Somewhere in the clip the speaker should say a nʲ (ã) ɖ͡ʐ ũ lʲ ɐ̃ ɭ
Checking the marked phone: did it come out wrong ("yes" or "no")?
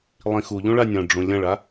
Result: yes